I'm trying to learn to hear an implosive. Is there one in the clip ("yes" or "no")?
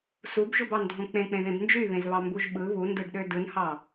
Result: yes